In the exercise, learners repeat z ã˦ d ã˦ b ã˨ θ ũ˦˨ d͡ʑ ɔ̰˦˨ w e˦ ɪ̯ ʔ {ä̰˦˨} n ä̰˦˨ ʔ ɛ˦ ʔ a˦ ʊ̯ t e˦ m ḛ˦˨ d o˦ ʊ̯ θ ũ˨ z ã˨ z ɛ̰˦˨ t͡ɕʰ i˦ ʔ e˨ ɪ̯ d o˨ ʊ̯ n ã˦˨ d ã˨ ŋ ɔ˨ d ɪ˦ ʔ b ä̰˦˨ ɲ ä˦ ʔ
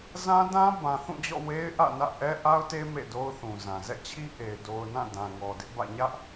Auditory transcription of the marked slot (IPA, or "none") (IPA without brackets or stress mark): ä̰˦˨